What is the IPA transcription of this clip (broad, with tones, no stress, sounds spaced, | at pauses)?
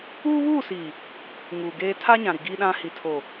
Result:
uː˦ β uː˦˨ s iː˨ | ŋ uː˨ ɡ eː˦ tʰ a˦ ɲ ã˨ ɾ i˨ ɡ i˦ ɗ ã˦ h i˨ tʰ o˨